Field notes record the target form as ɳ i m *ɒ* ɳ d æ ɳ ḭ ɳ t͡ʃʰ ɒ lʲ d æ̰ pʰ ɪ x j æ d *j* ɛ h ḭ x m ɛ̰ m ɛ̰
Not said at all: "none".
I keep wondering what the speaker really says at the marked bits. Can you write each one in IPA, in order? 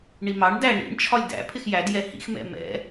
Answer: ɑ, j

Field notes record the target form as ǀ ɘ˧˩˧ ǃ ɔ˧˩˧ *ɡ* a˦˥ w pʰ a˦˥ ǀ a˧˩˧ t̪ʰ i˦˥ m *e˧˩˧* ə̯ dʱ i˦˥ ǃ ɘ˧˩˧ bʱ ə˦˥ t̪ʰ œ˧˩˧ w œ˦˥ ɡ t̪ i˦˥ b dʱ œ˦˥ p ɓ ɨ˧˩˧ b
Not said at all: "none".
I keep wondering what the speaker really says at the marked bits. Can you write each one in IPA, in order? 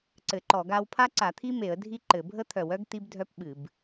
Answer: ɡ, e˧˩˧

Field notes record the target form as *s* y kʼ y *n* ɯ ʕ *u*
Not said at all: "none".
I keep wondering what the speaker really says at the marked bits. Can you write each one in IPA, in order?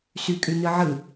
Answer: s, n, ɯ

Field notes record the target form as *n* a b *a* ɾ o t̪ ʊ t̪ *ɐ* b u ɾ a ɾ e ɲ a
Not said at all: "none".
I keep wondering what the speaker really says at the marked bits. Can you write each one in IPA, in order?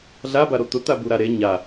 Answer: ɮ, a, a

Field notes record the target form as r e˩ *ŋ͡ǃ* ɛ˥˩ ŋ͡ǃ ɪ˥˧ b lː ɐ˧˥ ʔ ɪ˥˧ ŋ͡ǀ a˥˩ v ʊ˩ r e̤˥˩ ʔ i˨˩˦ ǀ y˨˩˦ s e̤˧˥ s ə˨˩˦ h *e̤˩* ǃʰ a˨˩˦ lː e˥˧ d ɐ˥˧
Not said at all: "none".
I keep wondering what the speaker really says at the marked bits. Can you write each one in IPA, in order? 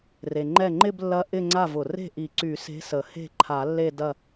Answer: ŋ͡ǃ, e̤˥˩

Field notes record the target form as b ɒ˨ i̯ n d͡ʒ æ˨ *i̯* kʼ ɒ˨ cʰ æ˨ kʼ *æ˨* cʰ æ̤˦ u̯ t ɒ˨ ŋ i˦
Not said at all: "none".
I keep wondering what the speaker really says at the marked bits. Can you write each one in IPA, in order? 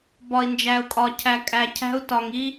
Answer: u̯, æ˨

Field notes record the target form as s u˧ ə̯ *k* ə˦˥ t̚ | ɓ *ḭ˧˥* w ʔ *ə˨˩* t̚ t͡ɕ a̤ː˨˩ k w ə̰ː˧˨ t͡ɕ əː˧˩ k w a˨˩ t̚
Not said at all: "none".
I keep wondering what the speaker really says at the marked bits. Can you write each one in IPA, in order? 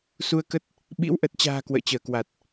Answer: k, ḭ˧˥, ə˨˩

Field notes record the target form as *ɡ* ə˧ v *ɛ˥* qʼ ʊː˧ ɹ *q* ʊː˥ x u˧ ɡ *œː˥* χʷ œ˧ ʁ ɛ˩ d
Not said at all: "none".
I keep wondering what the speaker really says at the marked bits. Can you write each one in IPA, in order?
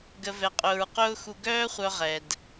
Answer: ɡ, ɛ˧, q, œː˥

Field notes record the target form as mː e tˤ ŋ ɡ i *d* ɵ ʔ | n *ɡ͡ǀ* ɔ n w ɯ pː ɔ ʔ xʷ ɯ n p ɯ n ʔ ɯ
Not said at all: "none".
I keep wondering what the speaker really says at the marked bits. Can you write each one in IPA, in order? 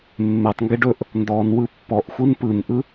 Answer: ɖ, d

